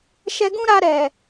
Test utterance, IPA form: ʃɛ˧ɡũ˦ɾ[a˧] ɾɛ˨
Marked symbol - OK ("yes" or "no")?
yes